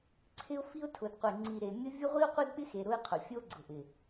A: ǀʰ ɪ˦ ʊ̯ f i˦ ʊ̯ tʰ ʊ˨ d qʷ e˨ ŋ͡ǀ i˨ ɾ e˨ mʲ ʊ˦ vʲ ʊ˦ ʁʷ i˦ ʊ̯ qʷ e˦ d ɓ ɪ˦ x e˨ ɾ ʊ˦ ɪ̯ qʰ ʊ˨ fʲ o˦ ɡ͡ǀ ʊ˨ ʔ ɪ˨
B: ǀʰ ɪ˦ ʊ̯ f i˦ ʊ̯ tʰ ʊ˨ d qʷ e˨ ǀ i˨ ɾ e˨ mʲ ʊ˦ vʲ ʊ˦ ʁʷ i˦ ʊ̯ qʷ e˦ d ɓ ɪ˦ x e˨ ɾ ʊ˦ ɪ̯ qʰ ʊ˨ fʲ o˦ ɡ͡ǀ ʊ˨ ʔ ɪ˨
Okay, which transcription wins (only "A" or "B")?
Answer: A